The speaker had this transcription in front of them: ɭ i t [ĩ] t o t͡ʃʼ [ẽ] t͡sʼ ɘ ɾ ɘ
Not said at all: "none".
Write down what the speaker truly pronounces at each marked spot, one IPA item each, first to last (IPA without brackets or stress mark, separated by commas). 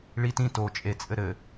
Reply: ĩ, e